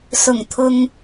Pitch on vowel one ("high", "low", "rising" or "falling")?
low